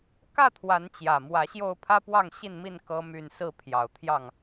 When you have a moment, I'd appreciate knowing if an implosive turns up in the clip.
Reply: no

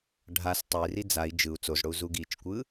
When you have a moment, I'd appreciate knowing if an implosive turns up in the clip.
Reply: no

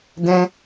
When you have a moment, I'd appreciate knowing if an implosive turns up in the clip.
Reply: no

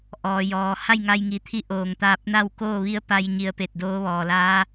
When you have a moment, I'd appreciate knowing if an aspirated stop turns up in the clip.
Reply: yes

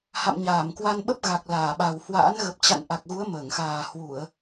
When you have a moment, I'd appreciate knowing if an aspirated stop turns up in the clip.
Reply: no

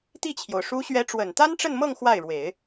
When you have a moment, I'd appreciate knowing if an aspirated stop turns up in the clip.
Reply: yes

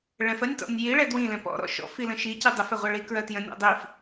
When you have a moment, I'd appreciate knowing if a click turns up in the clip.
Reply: no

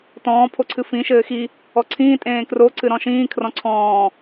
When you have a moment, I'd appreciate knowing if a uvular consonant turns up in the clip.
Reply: no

